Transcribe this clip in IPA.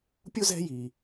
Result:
pʲu˥zɛ̤˦ji˩

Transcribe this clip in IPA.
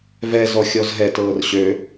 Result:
vɛzɔ xʲɔzɦɛtɤːr ɕø

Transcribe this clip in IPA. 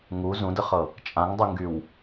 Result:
ŋu zũdəχɤ | t͡ʃʼãŋdˤuŋɡyw

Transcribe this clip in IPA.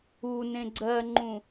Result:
u nẽɡ͡ǀɜŋ͡ǃũ

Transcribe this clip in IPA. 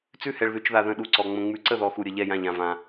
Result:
t͡sʉ˥˨hɛ˧ɭðʉ˧t͡ʃða˧ ðə̃˥˨ɗu˥˨ǀɔ˧ ŋ͡mə̃˧ŋ͡mʉ˧ǀə˥˨ðɔ˧ xu˧ɾʲə˧ʎɛ˥˨ jã˥˨ʎã˧vã˧

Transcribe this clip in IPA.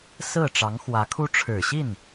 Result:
sɹ̩˥˩ʈ͡ʂɑ˧˥ŋ xwä˧˥kʰu˥ ʈ͡ʂʰɻ̩˨˩ɕi˥˩n

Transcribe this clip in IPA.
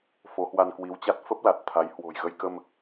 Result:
fo˨˦hwa˧nkwi˨˦wt͡ɕa˦˥t̚ fə˦˥p̚ la˨˩t̚ t̪ʰa˨˦j hwo̤˨˩jɣə˧jkə˧m

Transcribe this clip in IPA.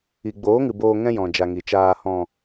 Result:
i˨ɡ͡boː˨˦ŋɨ˨ boː˧ŋɛ̃˦jɔ̃˨d͡ʒa˨ ŋi˨t͡ʃaː˧ hɔ̃˨

